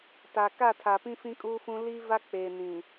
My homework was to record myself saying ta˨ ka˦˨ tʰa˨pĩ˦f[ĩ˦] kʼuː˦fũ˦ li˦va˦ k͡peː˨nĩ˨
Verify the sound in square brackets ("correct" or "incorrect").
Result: correct